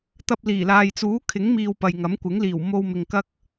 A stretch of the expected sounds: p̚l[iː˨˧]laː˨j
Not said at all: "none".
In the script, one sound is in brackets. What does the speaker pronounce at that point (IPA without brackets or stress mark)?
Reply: iː˨˩